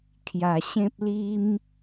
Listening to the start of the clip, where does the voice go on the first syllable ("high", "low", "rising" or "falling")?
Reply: low